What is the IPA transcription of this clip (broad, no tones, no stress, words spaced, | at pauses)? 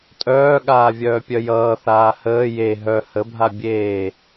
tʼœːɠaː vʲœːpʲœjʌːθaː həː je ɦœ həbʱa bʲeː